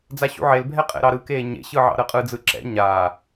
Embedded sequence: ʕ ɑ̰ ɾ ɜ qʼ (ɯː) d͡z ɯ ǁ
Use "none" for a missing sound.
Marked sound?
ɯ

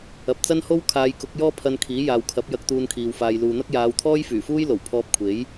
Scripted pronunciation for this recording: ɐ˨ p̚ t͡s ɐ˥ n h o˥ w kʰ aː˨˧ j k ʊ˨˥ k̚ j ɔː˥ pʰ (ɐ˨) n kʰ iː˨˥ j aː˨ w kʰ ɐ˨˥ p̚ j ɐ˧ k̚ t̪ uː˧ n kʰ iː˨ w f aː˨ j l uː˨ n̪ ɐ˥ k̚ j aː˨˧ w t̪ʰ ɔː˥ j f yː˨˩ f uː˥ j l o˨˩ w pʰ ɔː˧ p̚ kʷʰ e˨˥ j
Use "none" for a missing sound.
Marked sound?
ɐ˧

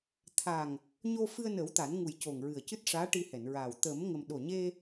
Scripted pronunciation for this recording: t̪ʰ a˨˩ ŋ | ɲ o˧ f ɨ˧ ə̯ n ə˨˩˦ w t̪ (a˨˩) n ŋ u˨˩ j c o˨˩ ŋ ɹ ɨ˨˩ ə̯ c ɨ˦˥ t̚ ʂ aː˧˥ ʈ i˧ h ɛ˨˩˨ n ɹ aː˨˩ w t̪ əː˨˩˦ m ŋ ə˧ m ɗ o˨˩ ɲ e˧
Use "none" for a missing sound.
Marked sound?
a˨˩˦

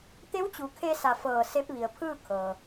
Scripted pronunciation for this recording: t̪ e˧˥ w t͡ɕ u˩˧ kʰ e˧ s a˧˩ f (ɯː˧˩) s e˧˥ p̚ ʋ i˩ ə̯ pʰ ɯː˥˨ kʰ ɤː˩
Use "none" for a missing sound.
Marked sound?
ɤː˧˩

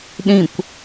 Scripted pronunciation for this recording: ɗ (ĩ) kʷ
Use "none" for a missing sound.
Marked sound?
ĩ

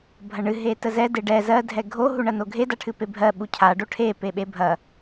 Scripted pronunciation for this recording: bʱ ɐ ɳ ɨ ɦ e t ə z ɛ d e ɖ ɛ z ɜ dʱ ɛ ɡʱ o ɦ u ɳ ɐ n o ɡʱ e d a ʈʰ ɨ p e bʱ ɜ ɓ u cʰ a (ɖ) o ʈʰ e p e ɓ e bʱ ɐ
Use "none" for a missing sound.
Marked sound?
ɖ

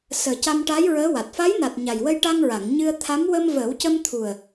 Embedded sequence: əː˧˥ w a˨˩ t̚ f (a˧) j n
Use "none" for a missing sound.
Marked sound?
a˧˥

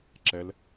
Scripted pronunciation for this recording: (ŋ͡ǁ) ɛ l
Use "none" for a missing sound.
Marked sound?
ǁ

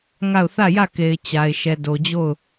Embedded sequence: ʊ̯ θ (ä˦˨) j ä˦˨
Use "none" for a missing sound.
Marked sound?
ä˦˨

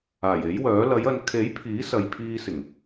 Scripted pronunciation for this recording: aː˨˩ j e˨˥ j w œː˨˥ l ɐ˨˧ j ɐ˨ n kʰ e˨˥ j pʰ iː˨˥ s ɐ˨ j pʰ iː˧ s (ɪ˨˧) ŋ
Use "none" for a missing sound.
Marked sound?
ɪ˨˩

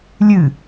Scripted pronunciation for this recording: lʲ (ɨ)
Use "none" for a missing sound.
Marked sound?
ɨ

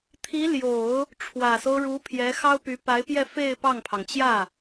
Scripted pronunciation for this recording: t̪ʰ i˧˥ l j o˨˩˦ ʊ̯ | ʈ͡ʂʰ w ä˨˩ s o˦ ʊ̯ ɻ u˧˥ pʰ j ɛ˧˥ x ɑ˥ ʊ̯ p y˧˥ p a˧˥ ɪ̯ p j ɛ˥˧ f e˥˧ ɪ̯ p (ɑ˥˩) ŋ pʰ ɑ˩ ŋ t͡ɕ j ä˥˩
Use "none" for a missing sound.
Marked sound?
ɑ˥˩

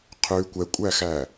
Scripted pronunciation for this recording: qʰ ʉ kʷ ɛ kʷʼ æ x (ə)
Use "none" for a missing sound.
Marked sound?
æ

